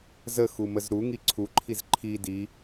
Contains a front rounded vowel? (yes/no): no